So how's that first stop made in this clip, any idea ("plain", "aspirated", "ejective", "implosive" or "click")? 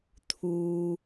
aspirated